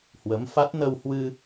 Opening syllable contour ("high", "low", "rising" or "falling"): rising